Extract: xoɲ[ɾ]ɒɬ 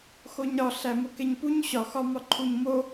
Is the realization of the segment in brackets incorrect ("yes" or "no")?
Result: no